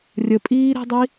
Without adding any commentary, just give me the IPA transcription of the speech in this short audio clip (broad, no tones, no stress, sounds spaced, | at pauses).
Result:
rʲ ə pʼ iː ɾ e̤ dˤ i